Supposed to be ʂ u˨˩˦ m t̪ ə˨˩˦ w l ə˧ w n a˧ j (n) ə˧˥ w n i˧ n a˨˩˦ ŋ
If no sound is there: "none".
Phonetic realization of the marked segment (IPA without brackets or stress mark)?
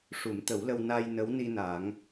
n